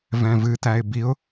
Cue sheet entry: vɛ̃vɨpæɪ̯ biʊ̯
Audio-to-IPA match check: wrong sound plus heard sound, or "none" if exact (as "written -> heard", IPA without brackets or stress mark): p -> t